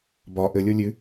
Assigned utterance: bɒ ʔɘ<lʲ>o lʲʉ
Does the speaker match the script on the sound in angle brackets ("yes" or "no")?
yes